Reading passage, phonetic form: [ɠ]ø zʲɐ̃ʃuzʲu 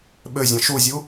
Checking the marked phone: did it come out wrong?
yes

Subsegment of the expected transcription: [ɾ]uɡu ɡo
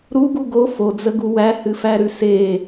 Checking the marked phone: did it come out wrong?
no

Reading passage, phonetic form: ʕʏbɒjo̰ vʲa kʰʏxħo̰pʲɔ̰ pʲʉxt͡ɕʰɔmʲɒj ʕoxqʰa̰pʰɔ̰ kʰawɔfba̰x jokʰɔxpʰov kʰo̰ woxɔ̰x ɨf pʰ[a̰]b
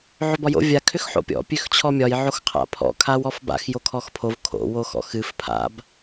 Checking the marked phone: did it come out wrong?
no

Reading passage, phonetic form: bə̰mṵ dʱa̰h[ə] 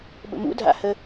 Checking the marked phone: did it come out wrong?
no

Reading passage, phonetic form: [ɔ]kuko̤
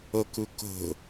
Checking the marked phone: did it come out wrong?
yes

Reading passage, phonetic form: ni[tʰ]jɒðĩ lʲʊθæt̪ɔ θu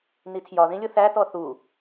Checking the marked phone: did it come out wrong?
no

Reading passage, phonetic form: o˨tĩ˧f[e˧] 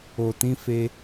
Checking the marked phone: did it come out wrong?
no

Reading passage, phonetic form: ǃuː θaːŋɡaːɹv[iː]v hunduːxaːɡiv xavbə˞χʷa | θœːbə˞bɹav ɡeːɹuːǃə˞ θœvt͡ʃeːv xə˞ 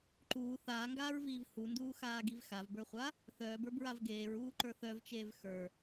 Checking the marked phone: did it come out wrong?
no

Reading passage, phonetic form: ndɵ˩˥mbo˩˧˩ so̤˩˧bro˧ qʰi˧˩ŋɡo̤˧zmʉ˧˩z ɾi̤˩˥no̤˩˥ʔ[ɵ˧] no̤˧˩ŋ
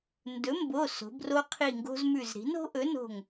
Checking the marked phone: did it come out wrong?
yes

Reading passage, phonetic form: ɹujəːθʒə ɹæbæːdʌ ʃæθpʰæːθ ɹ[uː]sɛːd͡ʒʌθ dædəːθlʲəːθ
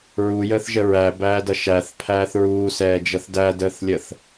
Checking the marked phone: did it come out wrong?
no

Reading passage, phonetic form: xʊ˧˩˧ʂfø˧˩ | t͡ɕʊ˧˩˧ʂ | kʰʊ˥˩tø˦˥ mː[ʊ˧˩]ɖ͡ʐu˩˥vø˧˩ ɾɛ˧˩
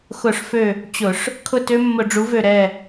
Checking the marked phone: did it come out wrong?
yes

